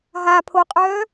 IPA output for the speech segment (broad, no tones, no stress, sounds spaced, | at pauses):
ɦ a pʰ o qʼ œː